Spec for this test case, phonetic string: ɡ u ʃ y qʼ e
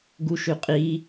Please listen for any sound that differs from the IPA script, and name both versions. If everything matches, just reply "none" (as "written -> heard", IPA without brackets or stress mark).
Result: e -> i